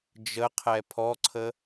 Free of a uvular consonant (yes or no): no